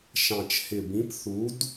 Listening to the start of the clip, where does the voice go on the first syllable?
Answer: low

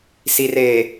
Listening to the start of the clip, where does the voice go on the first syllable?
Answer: low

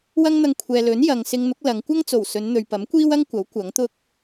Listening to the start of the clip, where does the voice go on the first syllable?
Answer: high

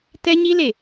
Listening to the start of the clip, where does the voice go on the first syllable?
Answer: high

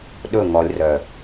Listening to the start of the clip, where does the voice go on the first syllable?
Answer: falling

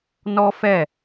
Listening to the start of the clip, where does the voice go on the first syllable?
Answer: high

